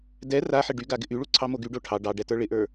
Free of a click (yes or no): no